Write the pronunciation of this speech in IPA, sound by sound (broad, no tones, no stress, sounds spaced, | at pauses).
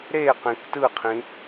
ɾ e q ĩ k t ɯ qʰ ĩ